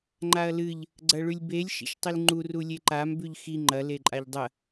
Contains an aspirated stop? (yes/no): no